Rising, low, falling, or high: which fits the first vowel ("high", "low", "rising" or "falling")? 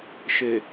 low